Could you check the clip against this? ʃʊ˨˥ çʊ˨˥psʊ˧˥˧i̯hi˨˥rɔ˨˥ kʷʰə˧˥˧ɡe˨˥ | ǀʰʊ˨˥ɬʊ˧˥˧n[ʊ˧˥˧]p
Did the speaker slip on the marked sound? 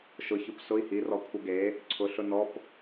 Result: yes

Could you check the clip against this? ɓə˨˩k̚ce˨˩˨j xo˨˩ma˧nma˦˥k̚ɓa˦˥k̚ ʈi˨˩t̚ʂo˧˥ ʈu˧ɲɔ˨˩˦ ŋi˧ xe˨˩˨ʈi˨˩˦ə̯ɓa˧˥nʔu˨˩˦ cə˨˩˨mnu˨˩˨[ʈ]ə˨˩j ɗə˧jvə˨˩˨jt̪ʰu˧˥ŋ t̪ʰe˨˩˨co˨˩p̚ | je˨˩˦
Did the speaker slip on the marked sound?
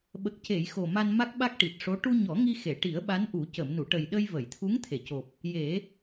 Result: no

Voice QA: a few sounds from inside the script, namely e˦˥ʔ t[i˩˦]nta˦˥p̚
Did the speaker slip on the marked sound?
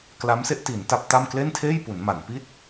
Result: no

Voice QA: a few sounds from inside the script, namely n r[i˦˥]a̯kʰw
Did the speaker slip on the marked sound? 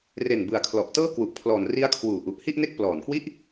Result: no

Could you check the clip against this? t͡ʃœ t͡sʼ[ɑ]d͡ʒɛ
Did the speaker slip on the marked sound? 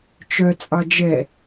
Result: no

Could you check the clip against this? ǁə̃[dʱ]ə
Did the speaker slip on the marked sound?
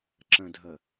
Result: no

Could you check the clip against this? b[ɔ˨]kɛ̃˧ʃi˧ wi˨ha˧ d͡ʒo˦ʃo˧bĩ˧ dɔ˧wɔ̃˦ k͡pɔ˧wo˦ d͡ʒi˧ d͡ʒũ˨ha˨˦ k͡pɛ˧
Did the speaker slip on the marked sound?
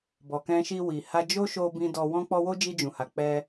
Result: no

